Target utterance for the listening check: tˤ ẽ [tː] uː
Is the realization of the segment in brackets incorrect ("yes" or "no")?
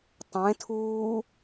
yes